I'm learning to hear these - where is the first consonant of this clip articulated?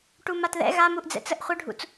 retroflex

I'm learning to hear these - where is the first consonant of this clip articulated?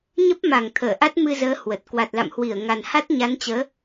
palate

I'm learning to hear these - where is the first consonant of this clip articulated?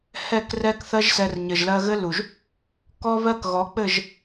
throat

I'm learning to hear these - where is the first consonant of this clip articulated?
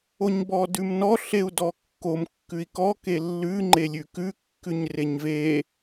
palate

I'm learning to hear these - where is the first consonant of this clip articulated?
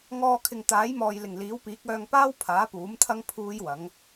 velum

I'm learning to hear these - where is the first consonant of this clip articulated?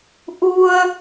throat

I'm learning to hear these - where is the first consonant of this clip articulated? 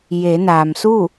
palate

